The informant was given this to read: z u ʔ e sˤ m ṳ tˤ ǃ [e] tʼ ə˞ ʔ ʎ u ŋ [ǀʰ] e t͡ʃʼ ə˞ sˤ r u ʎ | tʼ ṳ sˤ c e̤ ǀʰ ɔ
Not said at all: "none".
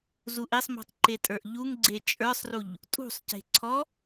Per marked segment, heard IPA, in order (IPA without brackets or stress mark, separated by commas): e, ɡ͡ǀ